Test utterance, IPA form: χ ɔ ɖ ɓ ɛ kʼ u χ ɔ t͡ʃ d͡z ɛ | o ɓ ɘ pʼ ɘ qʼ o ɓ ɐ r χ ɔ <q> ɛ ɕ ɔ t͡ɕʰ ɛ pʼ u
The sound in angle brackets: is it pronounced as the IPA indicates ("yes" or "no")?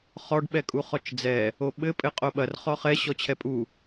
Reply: no